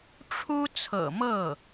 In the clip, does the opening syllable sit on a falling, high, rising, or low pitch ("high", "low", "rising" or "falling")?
high